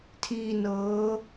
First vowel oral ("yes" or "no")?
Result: yes